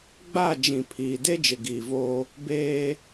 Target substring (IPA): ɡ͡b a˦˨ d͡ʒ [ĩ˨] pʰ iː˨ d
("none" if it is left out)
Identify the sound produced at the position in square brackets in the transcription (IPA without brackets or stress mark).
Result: ĩ˨